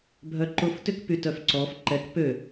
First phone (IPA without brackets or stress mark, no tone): bʱ